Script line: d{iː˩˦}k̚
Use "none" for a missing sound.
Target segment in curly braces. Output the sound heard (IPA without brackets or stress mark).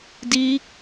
iː˦˥